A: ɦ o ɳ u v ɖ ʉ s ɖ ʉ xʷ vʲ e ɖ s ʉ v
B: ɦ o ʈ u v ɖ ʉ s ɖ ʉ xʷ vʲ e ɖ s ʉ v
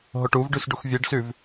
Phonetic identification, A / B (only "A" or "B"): B